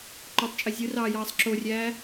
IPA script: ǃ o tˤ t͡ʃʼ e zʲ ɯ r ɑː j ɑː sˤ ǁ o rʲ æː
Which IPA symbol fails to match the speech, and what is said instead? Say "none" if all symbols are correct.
none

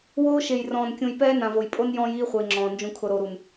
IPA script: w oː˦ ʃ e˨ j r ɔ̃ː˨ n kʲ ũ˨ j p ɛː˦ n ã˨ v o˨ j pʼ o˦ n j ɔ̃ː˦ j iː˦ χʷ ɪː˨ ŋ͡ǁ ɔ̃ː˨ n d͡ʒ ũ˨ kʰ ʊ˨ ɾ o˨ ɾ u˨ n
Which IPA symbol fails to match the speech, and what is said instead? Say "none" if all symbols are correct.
none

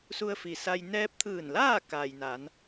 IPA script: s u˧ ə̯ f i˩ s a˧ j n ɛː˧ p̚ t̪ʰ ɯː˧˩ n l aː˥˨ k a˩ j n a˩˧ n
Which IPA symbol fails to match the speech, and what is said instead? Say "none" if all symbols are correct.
none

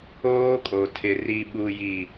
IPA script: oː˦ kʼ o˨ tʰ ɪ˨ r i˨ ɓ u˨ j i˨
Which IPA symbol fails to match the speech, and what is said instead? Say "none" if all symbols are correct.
none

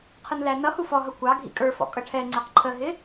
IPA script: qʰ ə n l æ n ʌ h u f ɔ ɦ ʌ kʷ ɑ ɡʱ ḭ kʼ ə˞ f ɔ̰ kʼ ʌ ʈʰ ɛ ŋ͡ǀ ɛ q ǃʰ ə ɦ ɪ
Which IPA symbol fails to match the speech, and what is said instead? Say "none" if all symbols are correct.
none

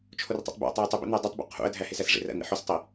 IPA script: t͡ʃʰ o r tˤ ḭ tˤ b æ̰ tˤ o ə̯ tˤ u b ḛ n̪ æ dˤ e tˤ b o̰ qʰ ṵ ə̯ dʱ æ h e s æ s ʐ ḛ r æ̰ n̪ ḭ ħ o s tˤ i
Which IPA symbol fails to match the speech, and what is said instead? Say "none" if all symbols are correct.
none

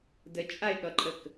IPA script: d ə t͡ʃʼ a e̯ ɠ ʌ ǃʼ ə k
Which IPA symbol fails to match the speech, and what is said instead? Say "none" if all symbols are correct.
none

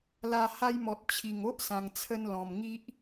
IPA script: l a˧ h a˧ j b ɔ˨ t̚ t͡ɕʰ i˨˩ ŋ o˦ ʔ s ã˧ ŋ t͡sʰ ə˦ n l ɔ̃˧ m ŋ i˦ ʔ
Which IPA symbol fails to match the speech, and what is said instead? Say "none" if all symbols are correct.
b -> m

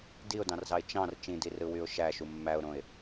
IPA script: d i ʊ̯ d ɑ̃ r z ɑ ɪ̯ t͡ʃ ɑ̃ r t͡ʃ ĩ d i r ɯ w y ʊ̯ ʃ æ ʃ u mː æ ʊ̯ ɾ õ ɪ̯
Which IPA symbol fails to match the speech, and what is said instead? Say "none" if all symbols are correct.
none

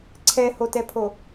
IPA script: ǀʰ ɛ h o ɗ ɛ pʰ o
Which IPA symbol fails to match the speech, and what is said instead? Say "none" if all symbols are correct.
ɗ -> t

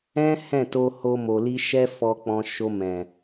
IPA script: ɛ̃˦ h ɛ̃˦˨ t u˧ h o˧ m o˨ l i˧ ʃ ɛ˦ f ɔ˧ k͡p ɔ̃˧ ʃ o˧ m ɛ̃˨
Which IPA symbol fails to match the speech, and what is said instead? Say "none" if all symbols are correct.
u˧ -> o˧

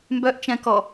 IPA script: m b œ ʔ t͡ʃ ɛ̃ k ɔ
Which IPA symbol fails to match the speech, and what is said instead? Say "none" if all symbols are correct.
none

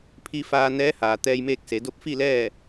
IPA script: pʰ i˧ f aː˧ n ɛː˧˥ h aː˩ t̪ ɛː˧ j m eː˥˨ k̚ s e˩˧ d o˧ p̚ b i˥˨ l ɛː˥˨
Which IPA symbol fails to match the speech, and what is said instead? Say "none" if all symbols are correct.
b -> f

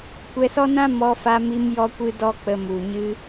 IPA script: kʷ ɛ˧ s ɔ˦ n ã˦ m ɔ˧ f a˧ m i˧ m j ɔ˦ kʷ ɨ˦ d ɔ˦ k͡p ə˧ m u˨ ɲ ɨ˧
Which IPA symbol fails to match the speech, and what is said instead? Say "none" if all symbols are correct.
none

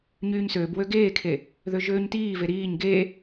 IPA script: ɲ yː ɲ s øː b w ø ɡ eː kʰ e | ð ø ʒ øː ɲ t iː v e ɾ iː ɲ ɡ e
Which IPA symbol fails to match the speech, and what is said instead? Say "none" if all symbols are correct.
none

